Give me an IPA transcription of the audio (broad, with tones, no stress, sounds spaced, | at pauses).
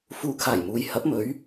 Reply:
f uː˨˧ kʰ aː˨˩ j m uː˨ j h ɐ˨˥ p̚ m ɵ˨˥ ɥ